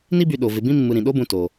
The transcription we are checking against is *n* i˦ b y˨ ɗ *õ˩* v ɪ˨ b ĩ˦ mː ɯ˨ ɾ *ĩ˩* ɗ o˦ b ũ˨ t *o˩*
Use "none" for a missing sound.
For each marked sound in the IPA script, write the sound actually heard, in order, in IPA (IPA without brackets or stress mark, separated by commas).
n, o˩, ĩ˩, o˩